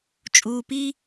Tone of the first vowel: low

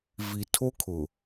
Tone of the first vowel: low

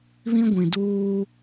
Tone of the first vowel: high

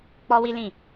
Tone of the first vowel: high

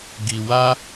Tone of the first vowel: low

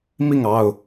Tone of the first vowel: falling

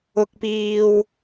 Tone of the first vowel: low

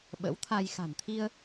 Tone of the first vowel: rising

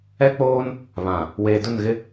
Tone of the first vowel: high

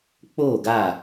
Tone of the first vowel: falling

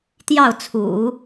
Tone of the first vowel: falling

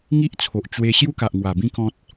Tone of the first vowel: high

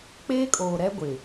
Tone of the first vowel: high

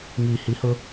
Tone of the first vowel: low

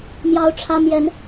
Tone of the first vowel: high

